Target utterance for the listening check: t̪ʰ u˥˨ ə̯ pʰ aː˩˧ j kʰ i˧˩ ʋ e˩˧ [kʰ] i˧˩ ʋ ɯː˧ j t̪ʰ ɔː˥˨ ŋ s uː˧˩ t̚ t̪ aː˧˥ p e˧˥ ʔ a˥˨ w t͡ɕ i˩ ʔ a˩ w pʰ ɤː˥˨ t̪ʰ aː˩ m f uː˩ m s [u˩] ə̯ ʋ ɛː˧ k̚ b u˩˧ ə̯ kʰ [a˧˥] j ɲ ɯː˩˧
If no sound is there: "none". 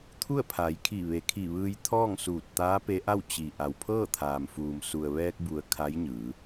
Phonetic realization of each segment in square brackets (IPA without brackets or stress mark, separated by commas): kʰ, u˩, a˧˥